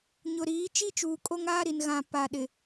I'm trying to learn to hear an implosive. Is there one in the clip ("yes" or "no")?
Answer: yes